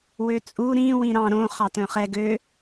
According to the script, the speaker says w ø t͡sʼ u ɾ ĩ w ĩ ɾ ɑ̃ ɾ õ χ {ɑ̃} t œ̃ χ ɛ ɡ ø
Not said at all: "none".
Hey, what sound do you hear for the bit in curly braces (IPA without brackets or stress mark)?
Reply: ɑ